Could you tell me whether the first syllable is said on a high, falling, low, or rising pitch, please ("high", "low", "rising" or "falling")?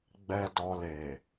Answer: low